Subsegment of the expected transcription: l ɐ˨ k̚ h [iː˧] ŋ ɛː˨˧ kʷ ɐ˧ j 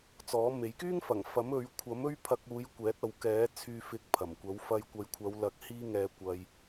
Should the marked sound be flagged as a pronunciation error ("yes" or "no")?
no